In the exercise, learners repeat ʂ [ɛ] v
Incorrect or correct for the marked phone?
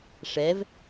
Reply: correct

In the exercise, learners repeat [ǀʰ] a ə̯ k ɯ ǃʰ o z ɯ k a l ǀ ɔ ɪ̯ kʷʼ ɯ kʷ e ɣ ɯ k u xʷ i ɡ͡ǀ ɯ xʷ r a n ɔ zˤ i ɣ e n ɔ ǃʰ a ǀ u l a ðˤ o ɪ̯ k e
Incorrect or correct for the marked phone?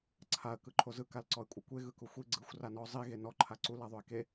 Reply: correct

